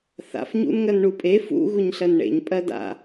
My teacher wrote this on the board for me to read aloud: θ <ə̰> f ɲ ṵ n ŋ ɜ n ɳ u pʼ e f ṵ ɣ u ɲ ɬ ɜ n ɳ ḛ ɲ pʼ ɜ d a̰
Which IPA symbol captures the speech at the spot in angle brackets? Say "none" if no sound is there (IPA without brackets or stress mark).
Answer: a̰